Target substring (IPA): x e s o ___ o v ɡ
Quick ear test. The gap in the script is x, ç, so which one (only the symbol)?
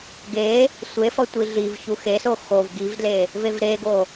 x